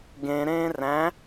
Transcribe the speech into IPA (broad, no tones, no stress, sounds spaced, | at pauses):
ɡ ẽ ɾ ẽː r æ̃